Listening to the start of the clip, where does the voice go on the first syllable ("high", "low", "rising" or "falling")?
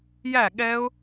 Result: falling